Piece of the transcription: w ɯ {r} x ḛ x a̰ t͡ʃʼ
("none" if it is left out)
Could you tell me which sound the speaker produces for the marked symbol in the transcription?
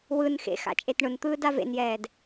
n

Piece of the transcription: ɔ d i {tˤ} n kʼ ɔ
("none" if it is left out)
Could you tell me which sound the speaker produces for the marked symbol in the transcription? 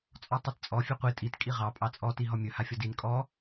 none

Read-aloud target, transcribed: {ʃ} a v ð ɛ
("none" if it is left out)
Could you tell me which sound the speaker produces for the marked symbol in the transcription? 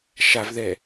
ʃ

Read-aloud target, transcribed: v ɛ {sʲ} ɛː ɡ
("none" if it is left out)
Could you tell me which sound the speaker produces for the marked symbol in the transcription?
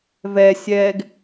sʲ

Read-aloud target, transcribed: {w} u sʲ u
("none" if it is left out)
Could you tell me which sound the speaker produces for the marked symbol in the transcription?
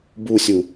b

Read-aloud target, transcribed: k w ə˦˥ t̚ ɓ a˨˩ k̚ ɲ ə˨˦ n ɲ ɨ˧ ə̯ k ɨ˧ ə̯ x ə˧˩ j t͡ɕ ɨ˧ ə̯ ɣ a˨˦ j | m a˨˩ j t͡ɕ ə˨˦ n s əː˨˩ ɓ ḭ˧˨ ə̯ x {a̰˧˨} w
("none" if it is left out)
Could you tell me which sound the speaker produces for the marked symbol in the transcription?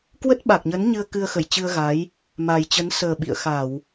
a˧˩˨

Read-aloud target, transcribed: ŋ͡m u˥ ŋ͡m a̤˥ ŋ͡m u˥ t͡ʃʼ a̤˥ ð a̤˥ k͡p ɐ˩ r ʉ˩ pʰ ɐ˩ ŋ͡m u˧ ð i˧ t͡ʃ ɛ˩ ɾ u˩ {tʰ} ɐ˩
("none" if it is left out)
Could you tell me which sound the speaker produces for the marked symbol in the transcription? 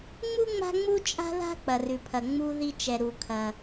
kʰ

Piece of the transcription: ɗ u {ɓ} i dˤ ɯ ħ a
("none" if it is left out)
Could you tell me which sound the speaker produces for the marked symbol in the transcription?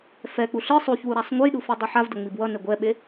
f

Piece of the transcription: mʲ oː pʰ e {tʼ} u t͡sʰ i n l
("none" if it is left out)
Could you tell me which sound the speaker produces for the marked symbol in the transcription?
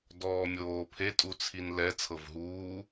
tʼ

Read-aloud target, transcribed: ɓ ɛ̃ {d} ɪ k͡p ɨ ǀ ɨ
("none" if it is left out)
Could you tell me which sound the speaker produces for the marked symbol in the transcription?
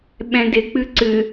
d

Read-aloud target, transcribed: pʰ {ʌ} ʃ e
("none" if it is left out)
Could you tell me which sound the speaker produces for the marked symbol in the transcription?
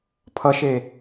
ʌ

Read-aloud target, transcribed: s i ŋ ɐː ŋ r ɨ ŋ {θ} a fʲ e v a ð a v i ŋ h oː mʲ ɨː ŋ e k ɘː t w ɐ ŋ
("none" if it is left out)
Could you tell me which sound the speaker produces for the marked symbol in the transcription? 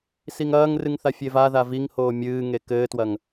θ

